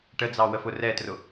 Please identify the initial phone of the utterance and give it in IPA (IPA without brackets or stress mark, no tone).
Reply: ʈ